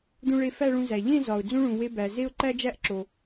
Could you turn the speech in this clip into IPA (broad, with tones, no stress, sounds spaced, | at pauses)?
d̪ ũ˧ ɭ e˧ f æ˥˧ ɭ ũ˧ z æ˩ ʎ ẽ˥˧ z ɒ˩ ʊ̯ d͡z ũ˥ ɭ ũ˩ w e˧ b æ˩ z e˥˧ ʊ̯ ǃ æ˥ d͡ʒ æ˥ ʔ ǁ o˩